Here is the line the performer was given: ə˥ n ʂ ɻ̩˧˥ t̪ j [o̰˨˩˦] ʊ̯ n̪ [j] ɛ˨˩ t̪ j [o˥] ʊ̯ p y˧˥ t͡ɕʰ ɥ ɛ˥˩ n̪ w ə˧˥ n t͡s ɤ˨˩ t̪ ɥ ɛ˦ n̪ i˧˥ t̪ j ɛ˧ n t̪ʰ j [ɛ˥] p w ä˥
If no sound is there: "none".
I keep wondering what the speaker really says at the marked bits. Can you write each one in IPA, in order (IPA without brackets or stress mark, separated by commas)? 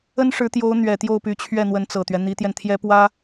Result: o˧˥, ɥ, o˥˩, ɛ˥